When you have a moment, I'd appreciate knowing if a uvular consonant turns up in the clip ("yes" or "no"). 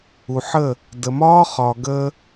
yes